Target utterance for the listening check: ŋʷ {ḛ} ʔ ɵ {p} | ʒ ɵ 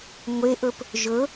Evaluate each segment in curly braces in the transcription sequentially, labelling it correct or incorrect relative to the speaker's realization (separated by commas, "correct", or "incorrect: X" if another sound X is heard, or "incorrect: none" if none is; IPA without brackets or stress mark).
incorrect: e, correct